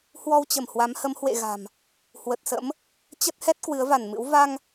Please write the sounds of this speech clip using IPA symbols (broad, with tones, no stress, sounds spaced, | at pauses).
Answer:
h w ɔ˧ w t͡ɕ ə˧˩ m h w a˨˦ m h ə˨˦ m h w ḛ˧˨ ɣ a̤˨˩ m | h w ə˨˩ t̚ s ə̰˧˥ m | t͡ɕ ə˦˥ t̚ h ɛ˦˥ t̚ k w ɨ˨˦ ə̯ v a˧˩ n m ɨ̰˧˥ w v a˧ ŋ